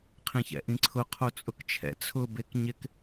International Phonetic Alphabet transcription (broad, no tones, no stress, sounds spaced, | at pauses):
qʰ ẽ ç ɛ̰ ʔ ĩ ǀʰ ʊ qʰ o t͡sʼ ʊ k t͡ʃʰ ɛ̰ t͡sʰ ʊ b e k ɲ ɪ k